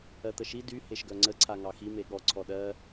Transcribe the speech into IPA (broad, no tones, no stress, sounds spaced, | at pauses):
ɜ t̪ ə ʃ i d y h e ʃ ɡ œ ŋ͡ǀ ə ǀʰ a ŋ ɑ x i m e ɠ ɔ ǀʰ ɔ ɗ ɜ